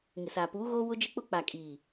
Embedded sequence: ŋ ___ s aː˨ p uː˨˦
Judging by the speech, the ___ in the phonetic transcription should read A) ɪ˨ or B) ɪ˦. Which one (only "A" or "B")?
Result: A